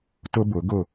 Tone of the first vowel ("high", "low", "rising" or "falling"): high